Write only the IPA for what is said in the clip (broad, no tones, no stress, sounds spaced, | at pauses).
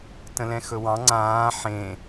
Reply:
t ə̃ l ɛ̃ x ɵ w ɑ̃ ŋ͡ǀ ãː ħ ẽ